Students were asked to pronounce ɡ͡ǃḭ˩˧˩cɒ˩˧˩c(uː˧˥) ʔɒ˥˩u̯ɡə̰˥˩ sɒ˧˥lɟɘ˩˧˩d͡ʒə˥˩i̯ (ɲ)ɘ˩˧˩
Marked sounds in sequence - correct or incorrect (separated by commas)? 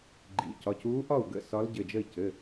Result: correct, incorrect